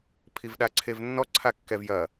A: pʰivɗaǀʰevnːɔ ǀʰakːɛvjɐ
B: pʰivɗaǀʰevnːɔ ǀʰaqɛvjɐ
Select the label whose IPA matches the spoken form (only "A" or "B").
A